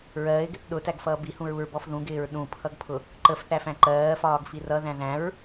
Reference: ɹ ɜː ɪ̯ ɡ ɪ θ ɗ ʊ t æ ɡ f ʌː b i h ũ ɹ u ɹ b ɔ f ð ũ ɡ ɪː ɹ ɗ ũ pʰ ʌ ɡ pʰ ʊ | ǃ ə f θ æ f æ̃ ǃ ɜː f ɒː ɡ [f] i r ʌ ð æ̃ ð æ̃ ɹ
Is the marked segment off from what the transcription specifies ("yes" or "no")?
no